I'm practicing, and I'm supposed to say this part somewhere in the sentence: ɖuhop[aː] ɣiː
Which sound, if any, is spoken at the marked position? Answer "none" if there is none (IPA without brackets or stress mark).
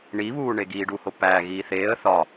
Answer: æː